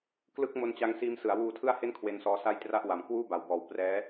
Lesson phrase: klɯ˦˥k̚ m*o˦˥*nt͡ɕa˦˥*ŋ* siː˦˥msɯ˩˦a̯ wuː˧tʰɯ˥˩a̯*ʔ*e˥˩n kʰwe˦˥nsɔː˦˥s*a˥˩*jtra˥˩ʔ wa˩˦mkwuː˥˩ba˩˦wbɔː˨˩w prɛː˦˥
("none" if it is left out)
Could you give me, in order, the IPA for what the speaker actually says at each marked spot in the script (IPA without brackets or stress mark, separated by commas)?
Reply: o˦˥, ŋ, h, a˥˩